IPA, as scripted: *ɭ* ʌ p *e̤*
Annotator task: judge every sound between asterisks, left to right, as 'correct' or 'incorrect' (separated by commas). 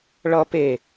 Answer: correct, incorrect